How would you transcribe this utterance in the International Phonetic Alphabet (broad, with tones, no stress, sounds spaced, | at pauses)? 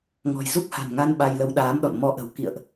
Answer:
ŋ ɔ̤˨˩ j z u˦˥ k̚ h a̤˨˩ n ŋ a˧ n ɓ a˧ j l ə˧ w ɗ aː˨˦ m ɗ ɔ̰˧˨ n m ɔ˧ ʔ ə̤˨˩ w k ḭ˧˨ ə̯ ʔ